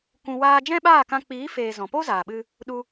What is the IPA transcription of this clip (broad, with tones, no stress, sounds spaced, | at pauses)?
kʷ ũ˧ w aː˦ d͡ʒ ɛ̃˦ ɓ aː˦˨ k ã˧ k͡p iː˨˦ f eː˨ z ɔ̃˨ p o˦ z aː˨ ɓ ɨ˧ | ɗ u˧